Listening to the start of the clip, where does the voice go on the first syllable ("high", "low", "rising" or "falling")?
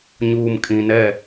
low